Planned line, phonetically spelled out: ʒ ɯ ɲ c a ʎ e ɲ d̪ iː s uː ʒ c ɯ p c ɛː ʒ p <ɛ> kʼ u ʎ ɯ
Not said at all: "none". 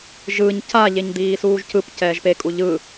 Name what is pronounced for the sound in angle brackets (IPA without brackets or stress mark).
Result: e